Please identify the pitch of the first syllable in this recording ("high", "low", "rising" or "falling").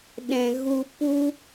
low